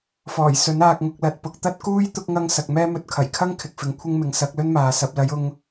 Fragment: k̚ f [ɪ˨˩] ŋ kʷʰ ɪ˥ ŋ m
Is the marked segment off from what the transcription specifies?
yes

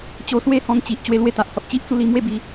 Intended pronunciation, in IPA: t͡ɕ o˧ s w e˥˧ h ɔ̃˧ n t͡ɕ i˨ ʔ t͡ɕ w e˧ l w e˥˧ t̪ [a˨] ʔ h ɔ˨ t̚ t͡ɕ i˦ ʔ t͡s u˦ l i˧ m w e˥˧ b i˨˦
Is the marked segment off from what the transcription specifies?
no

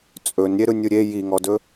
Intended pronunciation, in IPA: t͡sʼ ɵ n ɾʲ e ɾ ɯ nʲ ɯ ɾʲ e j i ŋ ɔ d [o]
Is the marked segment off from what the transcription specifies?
yes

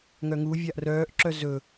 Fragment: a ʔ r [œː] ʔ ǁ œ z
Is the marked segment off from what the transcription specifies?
no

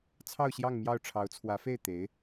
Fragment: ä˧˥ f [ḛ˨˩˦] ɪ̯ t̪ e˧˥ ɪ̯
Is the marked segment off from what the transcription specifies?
yes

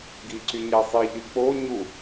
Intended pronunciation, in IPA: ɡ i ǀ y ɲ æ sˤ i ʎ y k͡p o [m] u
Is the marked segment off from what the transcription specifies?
yes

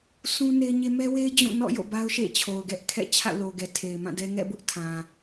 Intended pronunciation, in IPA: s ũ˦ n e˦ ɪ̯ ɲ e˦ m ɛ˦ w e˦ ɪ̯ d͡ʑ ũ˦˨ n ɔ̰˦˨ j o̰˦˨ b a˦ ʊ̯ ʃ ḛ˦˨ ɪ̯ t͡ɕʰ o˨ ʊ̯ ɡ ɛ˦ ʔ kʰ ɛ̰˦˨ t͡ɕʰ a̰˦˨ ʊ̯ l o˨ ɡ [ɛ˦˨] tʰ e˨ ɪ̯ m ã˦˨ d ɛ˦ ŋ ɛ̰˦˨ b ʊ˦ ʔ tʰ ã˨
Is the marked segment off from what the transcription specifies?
yes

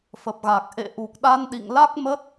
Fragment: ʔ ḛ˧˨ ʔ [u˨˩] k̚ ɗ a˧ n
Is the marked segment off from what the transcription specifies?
no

